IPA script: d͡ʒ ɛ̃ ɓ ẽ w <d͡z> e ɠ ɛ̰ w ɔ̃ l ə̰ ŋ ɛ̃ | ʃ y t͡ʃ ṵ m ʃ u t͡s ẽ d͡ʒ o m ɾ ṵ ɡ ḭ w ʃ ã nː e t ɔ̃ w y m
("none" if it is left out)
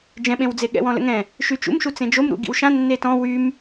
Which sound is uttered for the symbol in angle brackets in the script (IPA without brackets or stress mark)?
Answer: d͡z